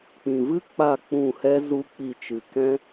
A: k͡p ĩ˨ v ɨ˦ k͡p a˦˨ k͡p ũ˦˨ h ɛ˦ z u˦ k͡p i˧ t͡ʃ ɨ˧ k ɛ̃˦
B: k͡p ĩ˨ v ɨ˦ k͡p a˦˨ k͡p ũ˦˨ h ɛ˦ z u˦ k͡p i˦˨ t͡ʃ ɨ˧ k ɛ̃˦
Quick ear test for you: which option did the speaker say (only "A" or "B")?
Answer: B